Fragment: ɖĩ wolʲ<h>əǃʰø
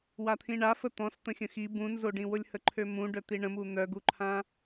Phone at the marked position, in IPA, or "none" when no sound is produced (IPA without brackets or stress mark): h